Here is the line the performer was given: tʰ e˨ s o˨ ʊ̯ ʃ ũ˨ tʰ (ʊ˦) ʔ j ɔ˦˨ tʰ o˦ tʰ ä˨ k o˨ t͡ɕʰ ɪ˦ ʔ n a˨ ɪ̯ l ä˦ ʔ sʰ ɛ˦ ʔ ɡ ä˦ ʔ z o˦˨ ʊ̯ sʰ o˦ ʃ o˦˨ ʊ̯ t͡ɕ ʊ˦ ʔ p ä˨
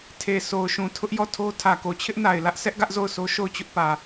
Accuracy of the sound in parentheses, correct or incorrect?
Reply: correct